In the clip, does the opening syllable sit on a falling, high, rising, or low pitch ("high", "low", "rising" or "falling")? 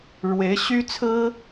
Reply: rising